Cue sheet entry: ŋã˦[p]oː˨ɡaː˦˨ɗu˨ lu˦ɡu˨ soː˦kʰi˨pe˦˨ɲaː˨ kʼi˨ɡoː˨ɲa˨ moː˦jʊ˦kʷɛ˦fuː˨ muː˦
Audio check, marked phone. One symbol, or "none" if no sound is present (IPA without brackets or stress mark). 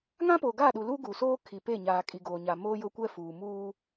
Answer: p